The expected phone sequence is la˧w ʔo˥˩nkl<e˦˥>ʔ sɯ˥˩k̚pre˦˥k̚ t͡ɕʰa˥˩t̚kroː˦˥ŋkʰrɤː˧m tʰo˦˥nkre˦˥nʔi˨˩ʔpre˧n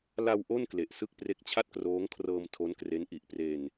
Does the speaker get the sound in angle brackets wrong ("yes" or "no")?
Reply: yes